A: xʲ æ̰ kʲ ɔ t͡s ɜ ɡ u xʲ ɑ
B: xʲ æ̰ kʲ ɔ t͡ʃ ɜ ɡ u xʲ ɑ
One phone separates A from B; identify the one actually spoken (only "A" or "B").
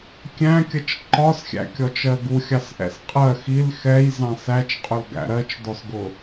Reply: B